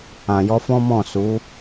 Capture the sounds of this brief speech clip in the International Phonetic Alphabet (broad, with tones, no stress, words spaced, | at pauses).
ã˨jɔ˧fɔ̃˦mɔ̃˦˨ su˨˦